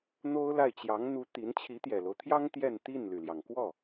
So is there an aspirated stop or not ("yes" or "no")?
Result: yes